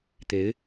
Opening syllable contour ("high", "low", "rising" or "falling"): rising